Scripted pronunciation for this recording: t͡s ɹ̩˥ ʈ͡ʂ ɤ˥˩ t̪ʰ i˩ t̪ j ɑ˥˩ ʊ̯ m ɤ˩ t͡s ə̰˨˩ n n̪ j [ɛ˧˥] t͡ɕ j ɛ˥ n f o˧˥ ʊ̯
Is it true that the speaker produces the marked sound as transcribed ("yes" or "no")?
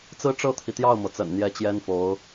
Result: yes